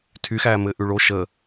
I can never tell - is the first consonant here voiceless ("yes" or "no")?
yes